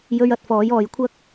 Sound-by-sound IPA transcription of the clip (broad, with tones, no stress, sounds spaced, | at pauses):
j ɵ˧ ɥ ɐ˨ t̚ f ɔː˨˧ j ɔː˧ j kʷʰ ɐ˥ k̚